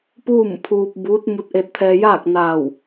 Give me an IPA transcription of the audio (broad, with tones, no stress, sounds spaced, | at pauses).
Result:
p uː˥˨ m pʰ uː˧ p̚ b uː˧˥ t̚ m u˧ t̚ ʔ e˧ t̚ t̪ʰ ɛː˧ j aː˥˨ k̚ n aː˧˩ w